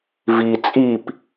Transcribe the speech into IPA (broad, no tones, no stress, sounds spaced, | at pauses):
v i t͡sʼ i p